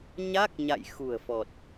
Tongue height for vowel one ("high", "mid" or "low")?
low